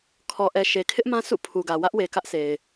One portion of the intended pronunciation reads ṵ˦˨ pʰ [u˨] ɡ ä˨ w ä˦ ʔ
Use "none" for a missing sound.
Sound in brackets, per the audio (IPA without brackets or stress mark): u˨